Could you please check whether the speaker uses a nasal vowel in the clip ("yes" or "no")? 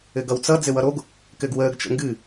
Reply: no